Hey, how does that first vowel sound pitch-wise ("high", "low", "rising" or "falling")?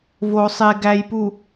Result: low